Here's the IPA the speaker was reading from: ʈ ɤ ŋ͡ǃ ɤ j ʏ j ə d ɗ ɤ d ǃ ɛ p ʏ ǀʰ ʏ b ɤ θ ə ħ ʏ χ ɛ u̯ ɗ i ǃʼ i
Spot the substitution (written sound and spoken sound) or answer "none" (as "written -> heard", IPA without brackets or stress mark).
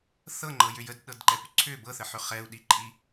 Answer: ʈ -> θ